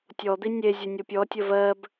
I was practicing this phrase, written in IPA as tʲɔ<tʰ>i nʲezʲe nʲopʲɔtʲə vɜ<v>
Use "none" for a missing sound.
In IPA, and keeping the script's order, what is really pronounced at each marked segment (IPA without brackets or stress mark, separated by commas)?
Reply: d̪, b